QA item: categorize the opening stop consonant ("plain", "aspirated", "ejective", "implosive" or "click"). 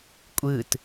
ejective